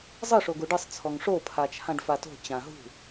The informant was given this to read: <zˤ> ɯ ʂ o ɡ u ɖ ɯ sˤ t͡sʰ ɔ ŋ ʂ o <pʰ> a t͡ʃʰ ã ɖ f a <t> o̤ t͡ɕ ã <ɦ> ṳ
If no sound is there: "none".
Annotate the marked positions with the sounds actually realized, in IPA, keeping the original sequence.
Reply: zˤ, pʰ, t, ɦ

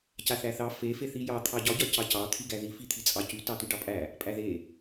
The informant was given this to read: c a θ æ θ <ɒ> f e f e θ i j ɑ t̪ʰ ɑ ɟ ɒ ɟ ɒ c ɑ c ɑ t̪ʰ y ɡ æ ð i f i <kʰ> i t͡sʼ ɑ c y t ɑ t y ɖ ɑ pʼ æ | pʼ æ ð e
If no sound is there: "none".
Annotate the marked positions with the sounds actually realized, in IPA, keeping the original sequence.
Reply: ɑ, t̪ʰ

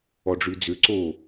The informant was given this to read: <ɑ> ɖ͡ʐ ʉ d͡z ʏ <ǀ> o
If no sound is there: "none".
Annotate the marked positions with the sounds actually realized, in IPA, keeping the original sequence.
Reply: ɔ, ǀ

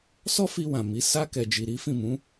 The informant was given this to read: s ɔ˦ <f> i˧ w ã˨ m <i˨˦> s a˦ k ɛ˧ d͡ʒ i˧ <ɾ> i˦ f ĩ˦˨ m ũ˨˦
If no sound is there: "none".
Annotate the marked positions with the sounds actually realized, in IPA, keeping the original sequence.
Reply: f, i˨˦, ɾ

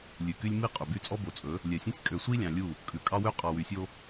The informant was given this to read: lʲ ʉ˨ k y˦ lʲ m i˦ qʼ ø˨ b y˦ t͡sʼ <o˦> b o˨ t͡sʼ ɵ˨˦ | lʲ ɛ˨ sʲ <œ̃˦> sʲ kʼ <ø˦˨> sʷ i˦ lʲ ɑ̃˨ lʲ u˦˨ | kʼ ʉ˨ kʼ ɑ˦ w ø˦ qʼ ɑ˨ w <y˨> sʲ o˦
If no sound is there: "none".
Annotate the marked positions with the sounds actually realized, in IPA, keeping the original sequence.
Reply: ɔ˦, œ̃˦, ø˨, y˨

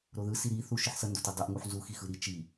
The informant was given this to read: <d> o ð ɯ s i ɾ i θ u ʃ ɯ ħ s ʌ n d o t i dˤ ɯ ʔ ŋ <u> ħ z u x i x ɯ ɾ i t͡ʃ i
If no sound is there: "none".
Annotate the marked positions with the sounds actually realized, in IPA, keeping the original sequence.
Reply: ɾ, u

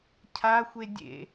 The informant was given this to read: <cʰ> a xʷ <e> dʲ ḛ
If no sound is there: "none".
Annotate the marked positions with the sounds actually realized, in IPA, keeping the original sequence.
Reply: cʰ, e

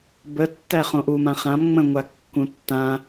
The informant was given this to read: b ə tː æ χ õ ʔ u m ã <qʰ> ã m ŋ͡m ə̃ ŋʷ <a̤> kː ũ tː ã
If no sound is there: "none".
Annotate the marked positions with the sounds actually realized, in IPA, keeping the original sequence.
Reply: χ, a

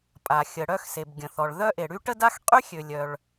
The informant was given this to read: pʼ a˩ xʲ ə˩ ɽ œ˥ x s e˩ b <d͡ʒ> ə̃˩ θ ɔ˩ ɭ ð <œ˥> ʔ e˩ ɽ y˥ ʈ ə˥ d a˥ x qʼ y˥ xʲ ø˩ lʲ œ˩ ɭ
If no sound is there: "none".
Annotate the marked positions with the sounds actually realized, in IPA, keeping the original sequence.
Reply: ɡʲ, œ˥

